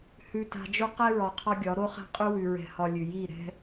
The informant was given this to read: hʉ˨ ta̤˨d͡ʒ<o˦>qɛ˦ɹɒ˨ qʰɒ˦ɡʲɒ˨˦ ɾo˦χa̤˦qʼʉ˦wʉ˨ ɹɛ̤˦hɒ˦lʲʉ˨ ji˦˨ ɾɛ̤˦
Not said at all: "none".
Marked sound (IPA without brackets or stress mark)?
o˦